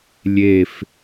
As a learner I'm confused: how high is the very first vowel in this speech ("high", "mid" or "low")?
mid